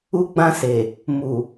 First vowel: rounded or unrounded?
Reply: rounded